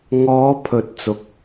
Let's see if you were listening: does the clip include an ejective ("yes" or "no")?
no